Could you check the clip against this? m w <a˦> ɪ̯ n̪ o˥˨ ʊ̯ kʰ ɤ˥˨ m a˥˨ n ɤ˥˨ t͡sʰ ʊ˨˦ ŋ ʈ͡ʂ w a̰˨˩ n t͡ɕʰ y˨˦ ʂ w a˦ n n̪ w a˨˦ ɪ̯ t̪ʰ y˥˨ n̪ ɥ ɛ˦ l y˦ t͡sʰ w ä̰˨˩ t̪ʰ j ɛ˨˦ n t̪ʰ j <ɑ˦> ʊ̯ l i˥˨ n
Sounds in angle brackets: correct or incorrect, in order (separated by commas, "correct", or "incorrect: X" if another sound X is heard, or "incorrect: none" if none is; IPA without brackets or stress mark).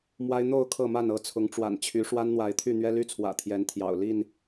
correct, incorrect: ɑ̰˨˩